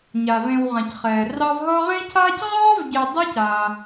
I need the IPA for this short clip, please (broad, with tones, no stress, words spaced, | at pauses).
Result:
ɲa˩vẽ˨wʁã˩c χɛː˩rɑ˦vɦʌ˥ ʁẽ˦cʰaː˦cʁɑː˥vɟe˨ dˤe˦ca˩